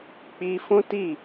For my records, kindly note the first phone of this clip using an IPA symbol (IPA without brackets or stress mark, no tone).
k͡p